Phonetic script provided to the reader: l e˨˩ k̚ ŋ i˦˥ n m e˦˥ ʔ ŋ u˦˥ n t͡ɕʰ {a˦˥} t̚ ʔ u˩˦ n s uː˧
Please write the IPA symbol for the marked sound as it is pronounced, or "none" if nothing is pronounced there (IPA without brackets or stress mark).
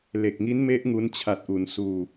a˨˩